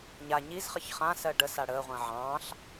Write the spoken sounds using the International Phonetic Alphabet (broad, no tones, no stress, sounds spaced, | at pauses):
ɲ a ɲ i z χ ə ç χ ã s ɜ ɖ ə s a ɽ əː ʁʷ ə̃ː ʕ ɑ̃ː ɬ